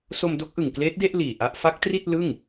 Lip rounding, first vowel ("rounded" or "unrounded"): rounded